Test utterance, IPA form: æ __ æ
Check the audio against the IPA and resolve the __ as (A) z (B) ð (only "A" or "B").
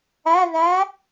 B